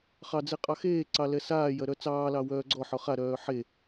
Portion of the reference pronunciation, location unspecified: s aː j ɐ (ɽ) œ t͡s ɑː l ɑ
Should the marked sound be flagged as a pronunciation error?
yes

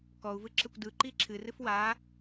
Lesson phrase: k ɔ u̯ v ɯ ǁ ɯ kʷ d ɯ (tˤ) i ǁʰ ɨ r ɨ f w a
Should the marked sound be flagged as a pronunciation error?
yes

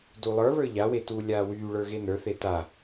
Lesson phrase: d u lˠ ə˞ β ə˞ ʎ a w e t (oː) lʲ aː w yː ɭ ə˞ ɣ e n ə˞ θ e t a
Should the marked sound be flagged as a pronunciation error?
yes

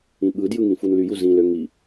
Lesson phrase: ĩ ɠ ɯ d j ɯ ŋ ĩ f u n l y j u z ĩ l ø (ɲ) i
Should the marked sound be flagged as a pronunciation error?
yes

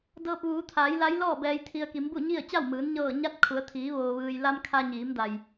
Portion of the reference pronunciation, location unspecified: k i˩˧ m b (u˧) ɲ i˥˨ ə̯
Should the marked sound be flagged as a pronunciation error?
yes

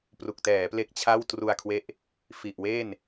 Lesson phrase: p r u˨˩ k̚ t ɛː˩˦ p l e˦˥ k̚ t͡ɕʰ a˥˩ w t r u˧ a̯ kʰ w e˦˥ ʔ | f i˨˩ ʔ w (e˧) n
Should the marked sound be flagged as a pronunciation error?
yes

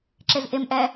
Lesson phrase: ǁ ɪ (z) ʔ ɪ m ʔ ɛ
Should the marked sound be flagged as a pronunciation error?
no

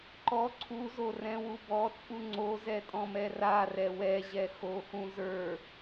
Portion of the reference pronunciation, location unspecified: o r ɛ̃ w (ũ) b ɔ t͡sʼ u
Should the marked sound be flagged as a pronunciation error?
yes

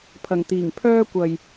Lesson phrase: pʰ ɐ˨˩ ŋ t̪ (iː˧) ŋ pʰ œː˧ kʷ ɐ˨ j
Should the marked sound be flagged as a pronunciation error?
yes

